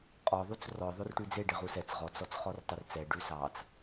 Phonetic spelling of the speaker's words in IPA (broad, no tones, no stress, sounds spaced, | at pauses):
qʼ ɔ ðˤ u t͡s r ɔ ðˤ o r ʈ ʉ d͡z e ɖ e ʁ u s ɛ t͡s ʁ ɔ t͡s ɔ t͡s χ ɔ r tˤ œ r t͡s ɛ ɖ ʉ s ɑ t͡s